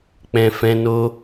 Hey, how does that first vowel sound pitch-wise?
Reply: low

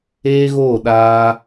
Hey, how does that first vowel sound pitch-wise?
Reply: high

